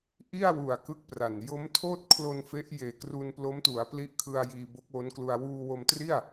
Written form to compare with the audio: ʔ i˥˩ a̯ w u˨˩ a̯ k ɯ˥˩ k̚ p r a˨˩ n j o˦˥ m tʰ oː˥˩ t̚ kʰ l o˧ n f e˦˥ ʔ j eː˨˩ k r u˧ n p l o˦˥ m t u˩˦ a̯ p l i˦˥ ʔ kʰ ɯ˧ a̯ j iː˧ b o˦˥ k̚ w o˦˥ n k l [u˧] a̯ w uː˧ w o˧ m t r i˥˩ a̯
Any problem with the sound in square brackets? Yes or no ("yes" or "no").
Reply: no